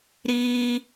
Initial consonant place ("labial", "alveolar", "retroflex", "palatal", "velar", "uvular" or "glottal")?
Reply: alveolar